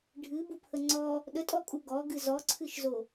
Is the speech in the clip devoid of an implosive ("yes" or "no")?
no